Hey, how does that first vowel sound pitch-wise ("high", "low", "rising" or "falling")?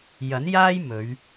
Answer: rising